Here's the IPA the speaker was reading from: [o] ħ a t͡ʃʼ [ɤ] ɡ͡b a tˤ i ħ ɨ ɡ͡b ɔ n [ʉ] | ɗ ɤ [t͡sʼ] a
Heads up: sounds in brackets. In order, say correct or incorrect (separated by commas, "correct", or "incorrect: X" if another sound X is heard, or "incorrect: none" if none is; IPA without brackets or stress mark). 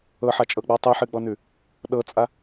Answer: incorrect: ɤ, correct, correct, correct